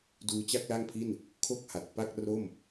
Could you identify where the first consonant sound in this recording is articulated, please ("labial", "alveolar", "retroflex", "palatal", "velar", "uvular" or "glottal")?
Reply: alveolar